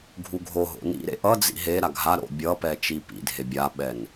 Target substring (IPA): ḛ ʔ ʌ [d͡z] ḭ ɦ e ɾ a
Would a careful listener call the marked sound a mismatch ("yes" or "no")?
no